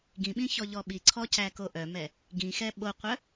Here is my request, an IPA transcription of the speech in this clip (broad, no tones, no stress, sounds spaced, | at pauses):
ɡ ĩ ɓ ĩ ç ɔ ʎ ɔ ɓ i ǀʰ ɔ c æ k o ʔ œ m ɛ | ɡ ĩ x ɛ ɓ o qʷ œ